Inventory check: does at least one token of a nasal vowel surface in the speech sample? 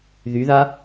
no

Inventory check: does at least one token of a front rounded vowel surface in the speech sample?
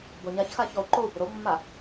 yes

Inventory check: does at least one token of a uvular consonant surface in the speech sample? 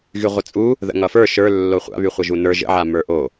yes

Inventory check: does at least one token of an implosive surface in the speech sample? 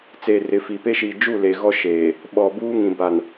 yes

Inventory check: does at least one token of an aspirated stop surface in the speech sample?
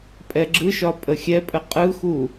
no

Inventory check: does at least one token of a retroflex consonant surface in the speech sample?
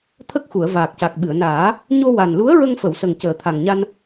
no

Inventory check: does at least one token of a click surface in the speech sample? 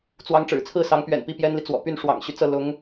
no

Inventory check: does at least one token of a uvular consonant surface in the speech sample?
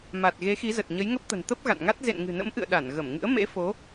no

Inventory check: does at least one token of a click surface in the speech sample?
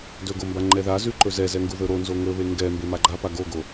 yes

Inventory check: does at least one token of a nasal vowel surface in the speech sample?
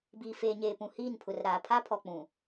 yes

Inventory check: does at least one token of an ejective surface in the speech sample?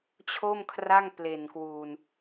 no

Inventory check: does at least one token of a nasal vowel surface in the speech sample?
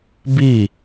no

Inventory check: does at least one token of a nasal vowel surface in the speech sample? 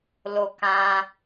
yes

